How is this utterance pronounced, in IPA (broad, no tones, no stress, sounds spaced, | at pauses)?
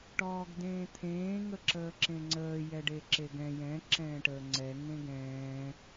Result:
ʈ ɔː ɡ d ẽː t̪ʰ ẽː ŋ ə ǁ əː ǁ ẽ ŋ͡ǀ əː j ɛ ɖ e ǁ e ɡ ɛ̃ j ɛ̃ ǁ ɛ̃ː ʈ əː ŋ͡ǀ ɛ ŋ ẽ ɡ ɛ̃ː